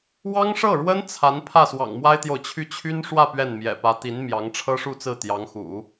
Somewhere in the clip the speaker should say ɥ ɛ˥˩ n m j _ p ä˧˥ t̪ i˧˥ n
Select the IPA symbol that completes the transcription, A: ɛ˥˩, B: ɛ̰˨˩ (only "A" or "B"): B